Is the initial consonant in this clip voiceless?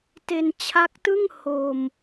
yes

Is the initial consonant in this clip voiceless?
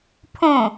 yes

